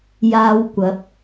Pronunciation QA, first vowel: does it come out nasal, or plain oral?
oral